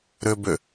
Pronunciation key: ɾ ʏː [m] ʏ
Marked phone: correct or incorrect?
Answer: incorrect